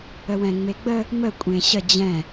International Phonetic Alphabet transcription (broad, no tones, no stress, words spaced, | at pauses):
əwɛ̃ŋ͡meɡ͡bə | mə kʷʼẽɕə d͡ʑɛ̃